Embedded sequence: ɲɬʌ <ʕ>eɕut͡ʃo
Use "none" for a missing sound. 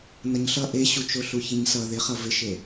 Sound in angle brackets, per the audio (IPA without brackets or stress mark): ʔ